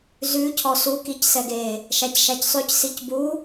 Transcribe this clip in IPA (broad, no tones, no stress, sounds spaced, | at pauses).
z ʉ cʰ ɔ s u k i c s ɛ ɡ e | ʃ æ c ʃ æ c sˤ ʉ c s i c b u